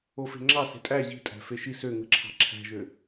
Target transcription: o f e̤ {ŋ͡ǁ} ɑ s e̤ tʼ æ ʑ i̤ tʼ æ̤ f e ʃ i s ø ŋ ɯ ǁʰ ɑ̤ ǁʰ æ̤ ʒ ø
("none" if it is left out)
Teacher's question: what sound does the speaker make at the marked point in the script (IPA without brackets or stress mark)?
ŋ͡ǁ